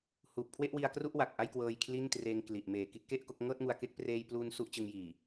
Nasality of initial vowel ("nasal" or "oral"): oral